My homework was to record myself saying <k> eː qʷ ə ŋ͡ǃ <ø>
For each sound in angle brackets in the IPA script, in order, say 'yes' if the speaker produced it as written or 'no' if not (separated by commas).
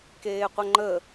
yes, no